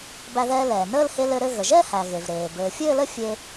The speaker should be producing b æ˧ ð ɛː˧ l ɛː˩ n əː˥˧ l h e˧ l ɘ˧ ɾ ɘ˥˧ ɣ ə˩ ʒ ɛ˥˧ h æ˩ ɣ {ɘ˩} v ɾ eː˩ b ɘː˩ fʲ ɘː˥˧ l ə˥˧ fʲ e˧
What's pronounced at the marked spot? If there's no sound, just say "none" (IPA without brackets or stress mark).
e˩